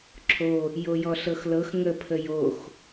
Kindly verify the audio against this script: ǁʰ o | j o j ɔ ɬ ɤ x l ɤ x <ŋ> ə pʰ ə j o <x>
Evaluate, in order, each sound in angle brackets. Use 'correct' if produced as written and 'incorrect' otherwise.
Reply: correct, correct

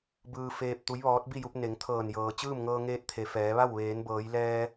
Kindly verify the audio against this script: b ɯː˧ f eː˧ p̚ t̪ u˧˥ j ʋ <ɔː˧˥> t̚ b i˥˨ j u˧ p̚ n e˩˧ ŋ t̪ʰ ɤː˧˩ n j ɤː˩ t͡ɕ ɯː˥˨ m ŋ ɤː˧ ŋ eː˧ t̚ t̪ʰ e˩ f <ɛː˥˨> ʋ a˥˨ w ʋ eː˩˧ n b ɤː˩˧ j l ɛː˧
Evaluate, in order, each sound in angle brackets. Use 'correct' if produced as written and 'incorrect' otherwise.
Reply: correct, incorrect

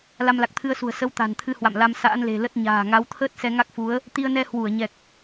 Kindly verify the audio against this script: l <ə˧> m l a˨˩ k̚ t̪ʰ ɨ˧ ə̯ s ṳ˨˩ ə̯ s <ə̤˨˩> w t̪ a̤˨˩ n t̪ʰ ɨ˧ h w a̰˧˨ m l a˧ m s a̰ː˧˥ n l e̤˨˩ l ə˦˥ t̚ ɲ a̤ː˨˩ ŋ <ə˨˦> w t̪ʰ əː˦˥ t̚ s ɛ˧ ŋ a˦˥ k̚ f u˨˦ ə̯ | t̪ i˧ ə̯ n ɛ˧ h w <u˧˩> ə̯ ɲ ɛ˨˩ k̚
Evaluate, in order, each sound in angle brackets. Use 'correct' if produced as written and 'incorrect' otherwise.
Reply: incorrect, incorrect, incorrect, correct

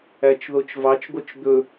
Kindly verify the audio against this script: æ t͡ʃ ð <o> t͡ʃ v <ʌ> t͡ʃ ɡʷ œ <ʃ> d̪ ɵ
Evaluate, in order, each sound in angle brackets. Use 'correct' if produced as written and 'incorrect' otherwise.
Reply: correct, incorrect, incorrect

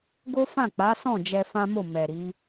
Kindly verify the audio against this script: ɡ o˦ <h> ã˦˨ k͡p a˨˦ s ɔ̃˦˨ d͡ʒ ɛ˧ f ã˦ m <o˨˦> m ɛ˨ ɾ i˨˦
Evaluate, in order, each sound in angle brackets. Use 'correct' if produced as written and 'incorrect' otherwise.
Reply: incorrect, incorrect

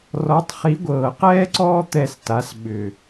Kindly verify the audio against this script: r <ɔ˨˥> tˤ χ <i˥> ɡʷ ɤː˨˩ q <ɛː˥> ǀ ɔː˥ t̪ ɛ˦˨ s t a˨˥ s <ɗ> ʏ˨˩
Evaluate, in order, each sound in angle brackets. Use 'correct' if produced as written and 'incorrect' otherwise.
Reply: correct, incorrect, correct, incorrect

